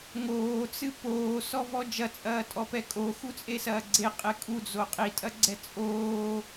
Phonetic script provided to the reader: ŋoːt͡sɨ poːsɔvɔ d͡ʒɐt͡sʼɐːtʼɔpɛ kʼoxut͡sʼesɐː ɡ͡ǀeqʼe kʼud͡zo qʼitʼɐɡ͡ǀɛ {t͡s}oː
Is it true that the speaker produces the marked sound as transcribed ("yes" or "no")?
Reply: no